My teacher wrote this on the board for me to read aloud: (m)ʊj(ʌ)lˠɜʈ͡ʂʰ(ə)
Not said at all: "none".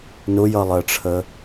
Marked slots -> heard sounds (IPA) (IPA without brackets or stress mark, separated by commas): n, ʌ, ə